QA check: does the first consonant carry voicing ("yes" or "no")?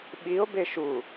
yes